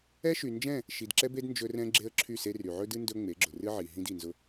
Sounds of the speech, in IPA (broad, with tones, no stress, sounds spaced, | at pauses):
ɛ˦ ʃ y˨ n d͡ʒ ɛ̃˦˨ | ʃ i˨ d ǁ ɛ˦ b e˦ d n d͡ʒ ɵ˦ r ɛ̃˦ ɡ͡ǁ e˦ ə̯ ǁʰ y˦˨ s e˦ r y˨ ʕ ɵ˦ d ɨ˦ n d ɵ˦ ŋ͡m e˨˦ ɡ͡ǁ ʊ˨ r ɨ˦ ʕ i˨ ɦ ĩ˦ d i˨ n z ʊ˦